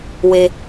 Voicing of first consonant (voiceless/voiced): voiced